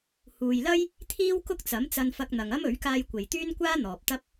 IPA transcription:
h uː˨ j l ɐ˥ j | t̪ʰ iː˥ w k ʊ˥ k̚ t͡s ɐ˨˥ m t͡s ɐ˧ n f ɐ˧ k̚ n̪ ɐ˨ ŋ ɐ˥ m ɵ˨˥ ɥ k aː˧ j kʷ e˨ j t̪ yː˥ n kʷ aː˥ n̪ ɔː˨ p̚ t̪ ɐ˥ p̚

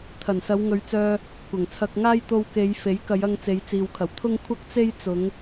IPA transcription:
t̪ʰ ɐ˨˩ n s ɐ˨˧ w ŋ ɵ˨˧ ɥ t͡s œː˧ | kʷ ɐ˨˩ ŋ t͡sʰ ɐ˧ k̚ ŋ aː˥ j t̪ o˧ w k e˨˧ j f e˨˥ j k ɐ˨˧ j ɐ˧ ŋ t͡s e˨˧ j t͡s iː˨ w kʰ ɐ˨˩ w t̪ʰ ʊ˥ ŋ kʷʰ ɐ˥ k̚ t͡s e˥ j t͡s ʊ˨˧ ŋ

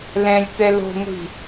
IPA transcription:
l ɛ̃ lʲ t̪ ɛ l o̤ ŋʷ i̤

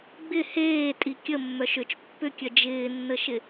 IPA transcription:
ɡ͡b ɪ h eː tʼ i kʲ ə mː œ ʃ ʏ t͡ʃ pː ʏ kʲ œ d͡ʒ ɪː nː ə ʃ ɪ

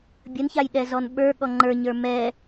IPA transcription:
bʲ ə n ç a j ɗ ɛ z ɔ n ɓ ə˞ ɠ ɔ ŋ͡ǃ ə˞ ɲ ə˞ m ɛ

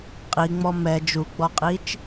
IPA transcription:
qʼ i ŋ͡m ɔ m ɛ d͡ʒ u ɡ͡b ɔ qʼ i t͡ʃ

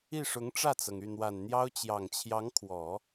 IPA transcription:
i˥˩ ʂ ʊ˧˥ ŋ ʈ͡ʂ ä˥˩ t͡s ɤ˩ ŋ y˥˩ n̪ w a˨˩ n n̪ j ɑ˥ ʊ̯ t͡ɕ j ɑ˨˩ ŋ t͡ɕʰ j ɑ˧˥ ŋ kʰ w ɔ˨˩˦

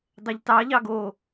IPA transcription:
dˤ ɛ ʎ t ɑ ʎ ɑ ɡ o

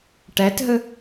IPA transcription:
ʈ æ t ɦ ə

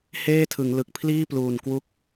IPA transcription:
h eː˥˩ tʰ ɯ˩˦ ŋ l ɯ˨˩ k̚ pʰ l iː˥˩ p l uː˨˩ n k w u˥˩ k̚

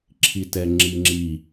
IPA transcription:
ǁʰ i t ɛ ŋ͡ǁ i ŋ͡ǁ i

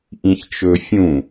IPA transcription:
ʔ ĩ ç t͡ʃ ɵ fʲ ũ

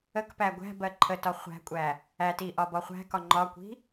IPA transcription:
ə k p æ ɡʷ æ̤ b ɜ ǃʰ ə t ɒ χʷ æ̤ kʷʼ æ | æ t i ʔ ɒ b ɒ χʷ æ̤ k ɒ ŋ͡ǃ ɒ kʷ i̤

